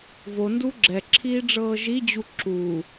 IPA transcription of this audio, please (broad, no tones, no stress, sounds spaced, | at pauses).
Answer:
v o n d u ɡ͡ǁ ɛ ǁʰ iː ɖ͡ʐ ɤː ʒ i d͡ʑ u ǁ uː